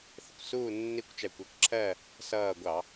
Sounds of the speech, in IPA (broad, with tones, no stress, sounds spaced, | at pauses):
θ ɪ˧˩ kʷ s uː˥˨ nː i˥˨ kʷ t͡ʃ æ˧˩ kʷ ɜ˦˥ kʷ ǁʰ ɜ˥˨ | s ʌː˧˩ ɡʷ ɑ˧˩˧